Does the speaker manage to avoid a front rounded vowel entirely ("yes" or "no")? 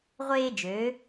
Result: no